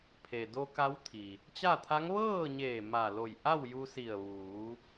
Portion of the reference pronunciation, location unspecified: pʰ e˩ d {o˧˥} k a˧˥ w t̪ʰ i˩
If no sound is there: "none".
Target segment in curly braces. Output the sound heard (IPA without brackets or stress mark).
o˧